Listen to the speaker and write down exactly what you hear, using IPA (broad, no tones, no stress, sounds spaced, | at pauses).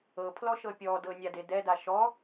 ɤ pʰ l ɔ ʃ ɤ pʲ ɔ d ɤ nʲ a d e d ɛ d a ʃ ɔ